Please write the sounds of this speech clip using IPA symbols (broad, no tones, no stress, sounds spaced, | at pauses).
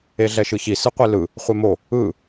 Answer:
e ɮ ɛ ʃ ɯ ç i s ɯ qʷ e l ɯ | χʷ e m o | ɯ